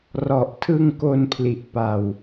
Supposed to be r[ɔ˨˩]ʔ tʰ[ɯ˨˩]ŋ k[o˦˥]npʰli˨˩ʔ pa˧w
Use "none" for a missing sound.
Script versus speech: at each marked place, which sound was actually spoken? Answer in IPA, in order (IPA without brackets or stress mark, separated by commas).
ɔ˨˩, ɯ˧, o˧